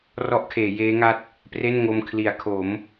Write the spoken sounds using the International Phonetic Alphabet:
rɔ˦˥ʔkʰeː˩˦jeː˦˥ŋa˦˥t̚ | pre˥˩nŋo˧m kʰli˩˦a̯kʰo˩˦m

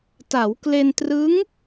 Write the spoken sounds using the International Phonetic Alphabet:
ta˩˦wkle˧ntrɯ˦˥ŋ

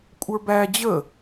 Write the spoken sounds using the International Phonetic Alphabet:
kʷʼə˞bæ d͡ʑə

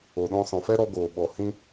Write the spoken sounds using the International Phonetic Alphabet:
o˨ɗɔ̃˧ sɔ̃˨fɛ˦ɾɔ˧ɡoː˨ ɓɔ˨hĩ˧

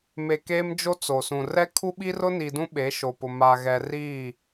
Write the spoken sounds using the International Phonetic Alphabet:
me˨ keː˦md͡ʒo˦t͡so˨sũ˨ rɛ˦kʰu˦ɓi˦ rʊ˦ni˨ dũ˦ɓe˨˦ʃo˨pʊ˨ ma˨ɣɛ˨riː˦˨

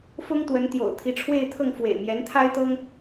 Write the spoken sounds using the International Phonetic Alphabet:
fʊ˥ŋt̪wə˧˥nt̪jo̰˨˩ʊ̯ t̪ʰi˧˥ʈ͡ʂʰwe˥˧ɪ̯t̪ʰɤ˥˩ŋ fwḛ˨˩ɪ̯mjɛ˧˥nt̪ʰa˥ɪ̯t̪ɤ˥ŋ

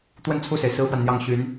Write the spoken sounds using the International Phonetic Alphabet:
t̪wə˥˧n t͡sʰu˥˩se˩ɪ̯ sɹ̩˥fwa˨nn̪jɑ˥˩ŋ ɕy˧˥n

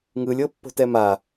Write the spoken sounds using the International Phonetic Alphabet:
ŋɯlʲ ɤpːo̤tɛma

